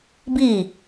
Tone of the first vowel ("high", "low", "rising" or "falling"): falling